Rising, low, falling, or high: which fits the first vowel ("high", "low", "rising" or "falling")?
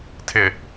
low